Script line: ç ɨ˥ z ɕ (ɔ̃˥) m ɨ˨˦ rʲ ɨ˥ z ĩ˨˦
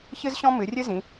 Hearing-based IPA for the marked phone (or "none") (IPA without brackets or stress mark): ɔ̃˥